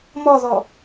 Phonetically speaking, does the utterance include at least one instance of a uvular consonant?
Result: no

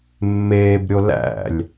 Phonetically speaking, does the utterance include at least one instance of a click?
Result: no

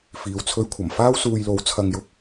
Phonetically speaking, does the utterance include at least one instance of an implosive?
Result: no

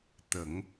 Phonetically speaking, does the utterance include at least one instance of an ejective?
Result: no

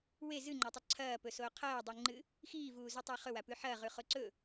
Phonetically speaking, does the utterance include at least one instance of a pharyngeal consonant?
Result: yes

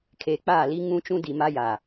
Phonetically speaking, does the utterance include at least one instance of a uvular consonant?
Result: no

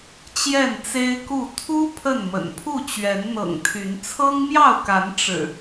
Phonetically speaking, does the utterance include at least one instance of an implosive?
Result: no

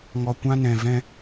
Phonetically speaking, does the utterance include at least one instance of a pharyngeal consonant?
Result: no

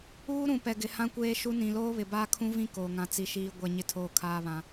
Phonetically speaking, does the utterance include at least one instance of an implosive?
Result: no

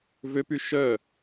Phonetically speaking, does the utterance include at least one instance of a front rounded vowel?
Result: yes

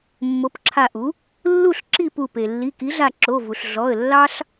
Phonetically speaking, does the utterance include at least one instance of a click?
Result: yes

